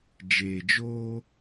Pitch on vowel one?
low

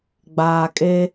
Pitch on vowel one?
low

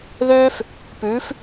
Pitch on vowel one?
high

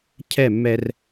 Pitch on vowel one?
falling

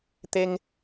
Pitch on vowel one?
high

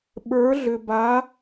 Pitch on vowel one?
rising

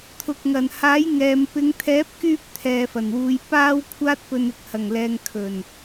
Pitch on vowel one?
low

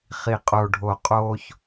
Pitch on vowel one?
low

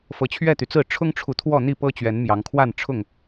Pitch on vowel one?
rising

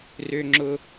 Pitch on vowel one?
high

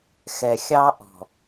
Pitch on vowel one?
low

